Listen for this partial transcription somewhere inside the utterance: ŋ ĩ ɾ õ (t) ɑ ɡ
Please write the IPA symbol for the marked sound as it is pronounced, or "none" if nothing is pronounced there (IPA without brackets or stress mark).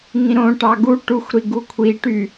ʈ